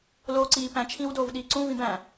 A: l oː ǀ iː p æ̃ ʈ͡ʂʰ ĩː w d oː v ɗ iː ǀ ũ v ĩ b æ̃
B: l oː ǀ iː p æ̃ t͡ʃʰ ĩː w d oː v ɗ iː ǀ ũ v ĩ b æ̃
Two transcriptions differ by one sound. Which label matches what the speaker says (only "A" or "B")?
B